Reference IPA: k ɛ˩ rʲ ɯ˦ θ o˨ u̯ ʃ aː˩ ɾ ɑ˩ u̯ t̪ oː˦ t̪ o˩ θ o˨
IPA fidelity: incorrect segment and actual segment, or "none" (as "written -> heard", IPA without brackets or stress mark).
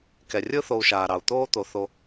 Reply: none